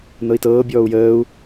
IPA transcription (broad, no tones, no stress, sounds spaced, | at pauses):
n ɤ i̯ t ɤː bʲ ɔː u̯ j əː u̯